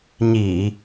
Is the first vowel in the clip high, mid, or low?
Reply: high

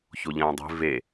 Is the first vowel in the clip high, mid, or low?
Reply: mid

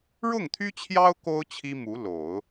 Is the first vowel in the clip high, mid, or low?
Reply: high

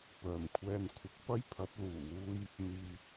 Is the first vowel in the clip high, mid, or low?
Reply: mid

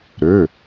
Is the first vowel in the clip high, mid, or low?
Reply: mid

